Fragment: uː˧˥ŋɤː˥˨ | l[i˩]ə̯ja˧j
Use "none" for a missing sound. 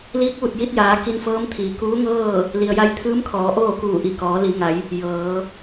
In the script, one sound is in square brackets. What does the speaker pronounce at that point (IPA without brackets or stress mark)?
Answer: i˩